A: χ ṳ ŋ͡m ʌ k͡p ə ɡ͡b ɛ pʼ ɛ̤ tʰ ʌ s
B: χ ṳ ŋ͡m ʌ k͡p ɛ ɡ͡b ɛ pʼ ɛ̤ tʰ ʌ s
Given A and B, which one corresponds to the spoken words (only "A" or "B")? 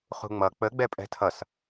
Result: A